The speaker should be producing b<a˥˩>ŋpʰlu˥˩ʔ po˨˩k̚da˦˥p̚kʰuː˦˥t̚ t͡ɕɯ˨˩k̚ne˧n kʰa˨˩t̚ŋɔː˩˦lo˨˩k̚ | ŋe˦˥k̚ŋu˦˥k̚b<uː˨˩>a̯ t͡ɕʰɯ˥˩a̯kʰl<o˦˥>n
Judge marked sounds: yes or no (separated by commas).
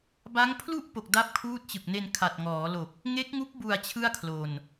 no, no, no